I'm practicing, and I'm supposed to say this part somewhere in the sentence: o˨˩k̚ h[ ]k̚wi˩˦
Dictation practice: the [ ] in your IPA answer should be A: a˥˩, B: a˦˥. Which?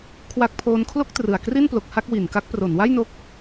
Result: A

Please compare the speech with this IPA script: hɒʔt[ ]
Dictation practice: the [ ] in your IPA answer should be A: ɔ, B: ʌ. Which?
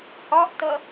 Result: B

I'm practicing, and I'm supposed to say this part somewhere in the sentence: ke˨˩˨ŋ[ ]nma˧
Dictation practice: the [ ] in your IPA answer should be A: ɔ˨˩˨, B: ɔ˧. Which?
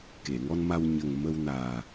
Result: B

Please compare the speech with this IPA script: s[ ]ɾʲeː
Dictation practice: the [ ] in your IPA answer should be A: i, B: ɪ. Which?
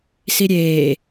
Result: A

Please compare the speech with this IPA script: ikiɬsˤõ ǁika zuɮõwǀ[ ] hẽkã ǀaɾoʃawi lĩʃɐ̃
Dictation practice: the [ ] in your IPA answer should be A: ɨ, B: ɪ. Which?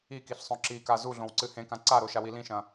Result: A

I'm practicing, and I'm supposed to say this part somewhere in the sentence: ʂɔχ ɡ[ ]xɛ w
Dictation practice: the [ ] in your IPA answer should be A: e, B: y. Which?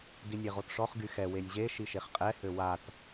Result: B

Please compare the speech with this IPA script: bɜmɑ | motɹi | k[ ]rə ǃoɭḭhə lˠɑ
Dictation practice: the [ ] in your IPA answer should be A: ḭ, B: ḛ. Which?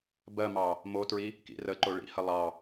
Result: A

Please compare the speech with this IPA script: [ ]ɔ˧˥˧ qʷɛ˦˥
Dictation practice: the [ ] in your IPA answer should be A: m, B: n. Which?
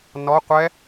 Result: B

